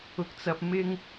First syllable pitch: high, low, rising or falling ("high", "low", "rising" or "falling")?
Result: rising